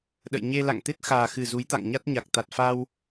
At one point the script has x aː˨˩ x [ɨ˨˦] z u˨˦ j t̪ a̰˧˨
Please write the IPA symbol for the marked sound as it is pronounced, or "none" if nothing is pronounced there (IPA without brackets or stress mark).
ɨ˨˩